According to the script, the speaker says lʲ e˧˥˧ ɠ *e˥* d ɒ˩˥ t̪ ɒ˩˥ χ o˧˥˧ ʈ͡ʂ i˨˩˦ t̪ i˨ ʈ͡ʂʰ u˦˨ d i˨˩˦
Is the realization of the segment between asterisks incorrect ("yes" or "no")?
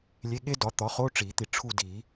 no